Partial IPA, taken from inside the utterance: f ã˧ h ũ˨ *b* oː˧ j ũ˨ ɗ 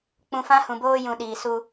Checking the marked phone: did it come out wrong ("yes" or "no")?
no